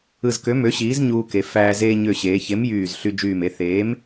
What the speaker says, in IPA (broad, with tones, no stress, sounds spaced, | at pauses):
ɯ˧˩ z k ø˨˥ m ø˨˥ ɕ iː˨˥ z ɲ uː˧ k e˩˧ f æː˧ z eː˧ ɲ ø˧˩ ɕ eː˩˧ ç e˨˥ m j yː˧˩ z ɬ y˧ d͡ʒ yː˧˩ m e˧ θ eː˨˥ m